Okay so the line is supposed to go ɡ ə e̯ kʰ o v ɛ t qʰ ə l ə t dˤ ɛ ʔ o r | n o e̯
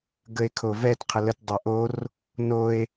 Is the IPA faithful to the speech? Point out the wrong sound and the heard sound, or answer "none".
none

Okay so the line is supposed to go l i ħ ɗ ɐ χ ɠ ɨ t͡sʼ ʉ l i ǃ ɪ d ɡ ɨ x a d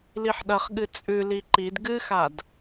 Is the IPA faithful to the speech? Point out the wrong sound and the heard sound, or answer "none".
ɪ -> i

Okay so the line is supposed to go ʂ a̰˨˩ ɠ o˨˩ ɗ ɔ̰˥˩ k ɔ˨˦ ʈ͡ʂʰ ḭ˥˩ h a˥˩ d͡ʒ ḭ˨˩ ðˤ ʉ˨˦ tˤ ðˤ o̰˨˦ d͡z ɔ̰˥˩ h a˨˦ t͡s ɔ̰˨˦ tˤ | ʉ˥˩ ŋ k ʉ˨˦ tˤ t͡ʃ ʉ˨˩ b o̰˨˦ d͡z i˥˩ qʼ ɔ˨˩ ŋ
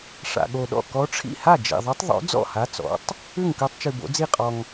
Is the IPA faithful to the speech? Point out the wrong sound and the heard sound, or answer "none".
none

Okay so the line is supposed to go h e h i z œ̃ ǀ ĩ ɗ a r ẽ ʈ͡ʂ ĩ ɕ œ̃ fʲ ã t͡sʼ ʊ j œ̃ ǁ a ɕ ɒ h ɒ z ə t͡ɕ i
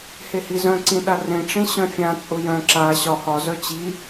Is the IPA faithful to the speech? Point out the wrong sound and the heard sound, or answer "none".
ə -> œ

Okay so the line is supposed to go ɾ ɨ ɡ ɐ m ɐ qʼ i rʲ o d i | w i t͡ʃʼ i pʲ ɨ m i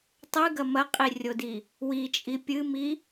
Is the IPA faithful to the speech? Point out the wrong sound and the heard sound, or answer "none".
ɾ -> tˤ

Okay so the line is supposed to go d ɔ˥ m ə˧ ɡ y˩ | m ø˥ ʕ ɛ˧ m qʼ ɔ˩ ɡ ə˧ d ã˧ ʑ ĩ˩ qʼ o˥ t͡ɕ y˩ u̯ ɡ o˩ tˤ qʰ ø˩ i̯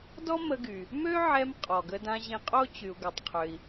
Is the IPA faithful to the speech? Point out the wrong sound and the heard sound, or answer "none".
ĩ˩ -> ĩ˧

